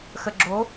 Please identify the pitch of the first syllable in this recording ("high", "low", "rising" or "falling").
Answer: low